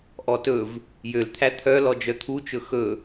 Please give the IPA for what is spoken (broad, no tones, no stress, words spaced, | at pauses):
ʔɔtɵv | jølt̪ʰæ t̪ʰœ lɔd͡ʒœt̪ʰut͡ʃɵ xɵ